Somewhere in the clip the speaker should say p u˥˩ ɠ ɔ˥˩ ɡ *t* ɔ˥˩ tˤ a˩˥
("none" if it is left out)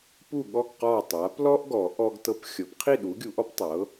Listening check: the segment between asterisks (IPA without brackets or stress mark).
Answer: q